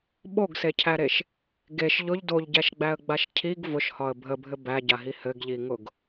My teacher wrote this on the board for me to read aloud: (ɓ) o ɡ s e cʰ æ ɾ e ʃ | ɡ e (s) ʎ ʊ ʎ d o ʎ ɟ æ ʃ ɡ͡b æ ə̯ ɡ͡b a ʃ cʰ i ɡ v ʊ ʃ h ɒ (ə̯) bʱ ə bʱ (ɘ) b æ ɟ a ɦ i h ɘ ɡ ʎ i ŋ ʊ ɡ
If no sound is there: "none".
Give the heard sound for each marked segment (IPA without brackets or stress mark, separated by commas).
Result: ɓ, ʃ, ə̯, ɘ